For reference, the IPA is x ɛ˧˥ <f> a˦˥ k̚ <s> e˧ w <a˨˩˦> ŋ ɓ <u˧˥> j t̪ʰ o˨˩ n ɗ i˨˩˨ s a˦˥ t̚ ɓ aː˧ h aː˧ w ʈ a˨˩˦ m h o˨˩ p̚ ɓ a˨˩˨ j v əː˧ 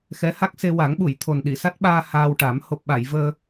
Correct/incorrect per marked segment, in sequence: incorrect: h, correct, correct, incorrect: u˨˩˨

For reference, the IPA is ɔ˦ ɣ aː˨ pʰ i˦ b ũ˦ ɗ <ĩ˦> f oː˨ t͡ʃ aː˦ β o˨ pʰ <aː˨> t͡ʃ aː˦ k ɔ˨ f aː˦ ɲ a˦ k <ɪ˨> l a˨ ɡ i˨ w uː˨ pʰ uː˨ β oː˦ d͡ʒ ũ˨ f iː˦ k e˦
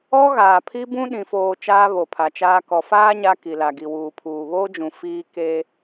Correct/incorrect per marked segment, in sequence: incorrect: ĩ˨, incorrect: a˨, incorrect: i˨

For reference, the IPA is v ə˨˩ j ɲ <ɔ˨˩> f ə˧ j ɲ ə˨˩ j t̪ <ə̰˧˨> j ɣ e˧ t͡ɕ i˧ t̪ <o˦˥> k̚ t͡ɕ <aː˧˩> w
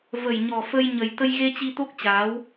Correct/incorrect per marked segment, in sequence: correct, incorrect: ə˧, correct, incorrect: aː˨˦

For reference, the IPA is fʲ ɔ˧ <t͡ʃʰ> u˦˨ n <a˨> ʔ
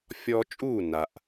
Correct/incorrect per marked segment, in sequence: incorrect: t͡ʃʼ, correct

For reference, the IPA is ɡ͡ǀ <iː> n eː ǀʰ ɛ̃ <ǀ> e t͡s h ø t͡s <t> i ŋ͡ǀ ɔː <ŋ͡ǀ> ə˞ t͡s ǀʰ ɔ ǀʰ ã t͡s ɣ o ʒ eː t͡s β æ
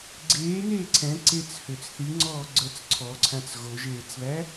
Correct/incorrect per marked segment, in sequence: incorrect: eː, correct, incorrect: θ, incorrect: ɡ͡ǀ

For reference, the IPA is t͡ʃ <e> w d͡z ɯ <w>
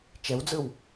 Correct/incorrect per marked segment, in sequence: incorrect: ɛ, correct

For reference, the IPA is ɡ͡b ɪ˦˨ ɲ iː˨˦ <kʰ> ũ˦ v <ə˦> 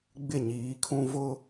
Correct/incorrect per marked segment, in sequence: correct, incorrect: ʊ˦

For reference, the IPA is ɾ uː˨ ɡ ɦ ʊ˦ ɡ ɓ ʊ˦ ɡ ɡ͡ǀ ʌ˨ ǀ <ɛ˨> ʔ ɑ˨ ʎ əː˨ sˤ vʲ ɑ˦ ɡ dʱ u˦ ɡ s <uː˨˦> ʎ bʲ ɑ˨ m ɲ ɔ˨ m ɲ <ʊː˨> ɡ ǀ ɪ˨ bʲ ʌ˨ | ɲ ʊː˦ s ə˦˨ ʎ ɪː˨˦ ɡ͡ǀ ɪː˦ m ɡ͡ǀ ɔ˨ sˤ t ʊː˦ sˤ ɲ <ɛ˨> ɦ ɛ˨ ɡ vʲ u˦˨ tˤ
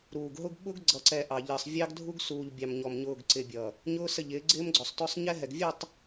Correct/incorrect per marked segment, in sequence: correct, incorrect: uː˨, correct, incorrect: ɛ˦

